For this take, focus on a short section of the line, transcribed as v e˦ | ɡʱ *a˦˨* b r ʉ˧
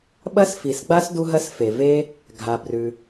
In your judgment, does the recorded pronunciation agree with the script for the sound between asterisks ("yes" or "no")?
no